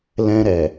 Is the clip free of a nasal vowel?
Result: no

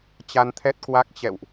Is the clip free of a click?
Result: yes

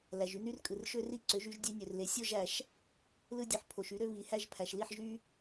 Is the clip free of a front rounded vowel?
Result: no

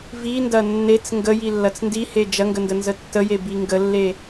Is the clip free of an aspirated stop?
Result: yes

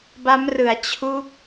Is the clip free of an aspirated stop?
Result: no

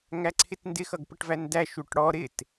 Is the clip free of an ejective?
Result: yes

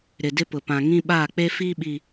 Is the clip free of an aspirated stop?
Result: yes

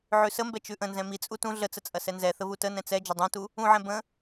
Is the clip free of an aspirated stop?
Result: yes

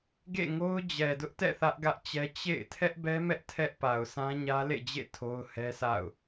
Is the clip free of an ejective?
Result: yes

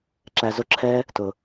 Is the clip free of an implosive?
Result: yes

